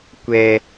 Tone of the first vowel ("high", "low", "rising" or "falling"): high